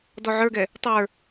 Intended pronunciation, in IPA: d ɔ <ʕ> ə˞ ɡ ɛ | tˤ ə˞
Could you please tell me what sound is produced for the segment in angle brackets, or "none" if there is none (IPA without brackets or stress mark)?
ʕ